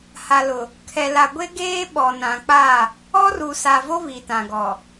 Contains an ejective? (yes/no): no